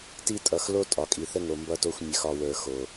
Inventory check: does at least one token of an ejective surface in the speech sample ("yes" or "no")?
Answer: yes